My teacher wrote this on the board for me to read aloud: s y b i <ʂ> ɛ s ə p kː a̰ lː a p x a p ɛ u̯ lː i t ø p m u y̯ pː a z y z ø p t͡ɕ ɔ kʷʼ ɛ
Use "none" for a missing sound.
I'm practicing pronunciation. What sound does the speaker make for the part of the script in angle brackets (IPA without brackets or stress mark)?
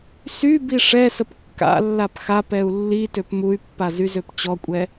ʂ